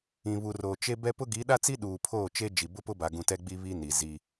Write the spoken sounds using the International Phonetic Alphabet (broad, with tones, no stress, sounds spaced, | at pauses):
ĩ˨ β u˨ r oː˨ t͡ʃ e˦ b ɛ˦ p ʊ˦ ɡ i˨˦ ɗ a˦ t͡s i˦ ɗ uː˨ pʰ oː˦˨ t͡ʃ e˦ d͡ʒ i˨ b ʊ˦ p ʊ˦ b a˨ ɡ ũ˨ t ɛ˦ ɡ͡b i˦ β i˦ n i˨ z i˦